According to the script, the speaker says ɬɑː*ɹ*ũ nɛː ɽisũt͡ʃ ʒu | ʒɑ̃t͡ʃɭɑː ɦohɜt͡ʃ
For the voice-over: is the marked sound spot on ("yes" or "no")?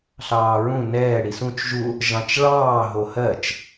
yes